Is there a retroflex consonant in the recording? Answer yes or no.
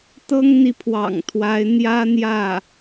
no